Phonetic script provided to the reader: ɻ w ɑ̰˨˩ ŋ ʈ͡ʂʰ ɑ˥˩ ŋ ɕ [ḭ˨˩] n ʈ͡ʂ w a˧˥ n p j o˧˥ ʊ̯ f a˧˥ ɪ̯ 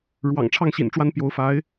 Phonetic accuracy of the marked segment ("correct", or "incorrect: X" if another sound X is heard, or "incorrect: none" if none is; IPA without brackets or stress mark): correct